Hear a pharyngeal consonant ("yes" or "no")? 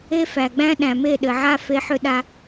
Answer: yes